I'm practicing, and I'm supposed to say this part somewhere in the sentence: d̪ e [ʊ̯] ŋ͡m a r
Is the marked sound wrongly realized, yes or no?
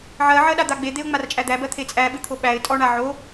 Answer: no